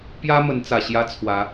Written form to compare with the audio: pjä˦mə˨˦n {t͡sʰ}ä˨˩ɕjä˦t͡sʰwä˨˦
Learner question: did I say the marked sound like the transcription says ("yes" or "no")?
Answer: no